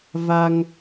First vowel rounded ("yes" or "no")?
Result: no